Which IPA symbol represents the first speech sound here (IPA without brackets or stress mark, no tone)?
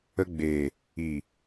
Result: ə